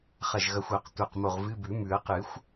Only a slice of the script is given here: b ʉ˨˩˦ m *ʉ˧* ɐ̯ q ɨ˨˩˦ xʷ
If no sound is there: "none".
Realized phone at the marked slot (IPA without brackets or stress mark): ʉ˨˩˦